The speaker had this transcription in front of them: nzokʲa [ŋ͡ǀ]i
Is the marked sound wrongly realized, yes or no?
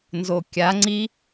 no